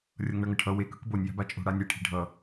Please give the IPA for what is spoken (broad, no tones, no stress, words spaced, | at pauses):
rʲʌŋɳʌŋʌʈʰʌ we kɯkbonʲ ja̤bat͡ʃʼo̤ ɽanʲe ʈʰi̤ɖʱʌ